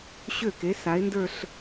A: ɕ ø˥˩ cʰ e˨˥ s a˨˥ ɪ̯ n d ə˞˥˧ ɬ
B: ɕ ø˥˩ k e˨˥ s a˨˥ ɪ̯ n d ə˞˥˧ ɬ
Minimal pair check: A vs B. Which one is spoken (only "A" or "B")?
B